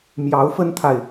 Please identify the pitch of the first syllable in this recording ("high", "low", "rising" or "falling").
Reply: rising